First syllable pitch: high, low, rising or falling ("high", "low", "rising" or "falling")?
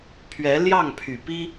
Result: rising